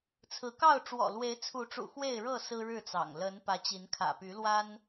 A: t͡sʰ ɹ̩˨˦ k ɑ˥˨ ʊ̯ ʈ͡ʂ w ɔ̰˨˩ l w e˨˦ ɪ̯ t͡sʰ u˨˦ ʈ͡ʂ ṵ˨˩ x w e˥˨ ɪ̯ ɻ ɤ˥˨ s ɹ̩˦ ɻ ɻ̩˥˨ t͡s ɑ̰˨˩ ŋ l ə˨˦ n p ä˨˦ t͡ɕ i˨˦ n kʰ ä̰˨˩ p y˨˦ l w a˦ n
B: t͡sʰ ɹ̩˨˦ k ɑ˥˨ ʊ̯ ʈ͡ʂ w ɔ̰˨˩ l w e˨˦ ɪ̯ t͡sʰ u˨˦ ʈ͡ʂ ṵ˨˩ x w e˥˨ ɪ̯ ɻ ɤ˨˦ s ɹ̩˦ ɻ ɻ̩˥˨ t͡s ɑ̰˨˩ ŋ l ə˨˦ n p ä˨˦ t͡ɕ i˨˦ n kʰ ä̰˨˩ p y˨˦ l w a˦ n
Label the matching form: A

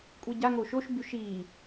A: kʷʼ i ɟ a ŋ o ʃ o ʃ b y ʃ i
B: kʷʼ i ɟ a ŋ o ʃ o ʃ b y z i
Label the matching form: A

